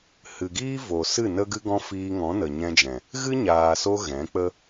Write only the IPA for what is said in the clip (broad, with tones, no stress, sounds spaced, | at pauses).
h ɨ˨ ɡ iː˦ v o˨ s ɨ˦˨ n ə˧ ɡ ɨ˧ ɡ ɔ̃˧ f iː˧ ŋ ɔ̃˨˦ n ə˨ ɲ ɛ̃˧ d͡ʒ ɛ̃˨ | ɣ ɨ˦ ɲ aː˨ s o˧ ɣ ɛ̃˨˦ k͡p ə˦